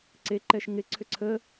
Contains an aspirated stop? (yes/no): yes